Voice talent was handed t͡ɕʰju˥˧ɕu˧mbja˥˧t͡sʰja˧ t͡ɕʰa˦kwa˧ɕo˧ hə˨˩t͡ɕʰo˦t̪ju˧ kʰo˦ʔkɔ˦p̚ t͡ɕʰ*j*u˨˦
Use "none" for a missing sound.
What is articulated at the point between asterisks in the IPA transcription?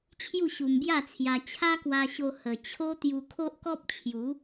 j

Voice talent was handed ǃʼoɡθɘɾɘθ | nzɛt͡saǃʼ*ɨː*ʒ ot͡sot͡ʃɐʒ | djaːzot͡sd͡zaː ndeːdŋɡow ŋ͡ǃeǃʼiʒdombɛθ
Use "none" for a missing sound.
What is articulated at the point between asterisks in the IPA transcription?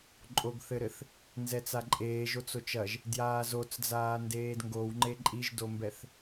eː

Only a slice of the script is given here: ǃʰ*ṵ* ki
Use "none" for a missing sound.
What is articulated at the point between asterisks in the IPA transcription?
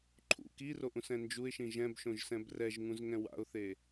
ṵ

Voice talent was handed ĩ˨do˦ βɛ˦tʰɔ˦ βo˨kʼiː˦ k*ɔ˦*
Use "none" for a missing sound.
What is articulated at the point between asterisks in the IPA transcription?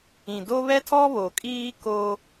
o˦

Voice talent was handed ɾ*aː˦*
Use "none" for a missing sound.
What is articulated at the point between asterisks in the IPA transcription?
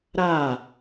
aː˦˨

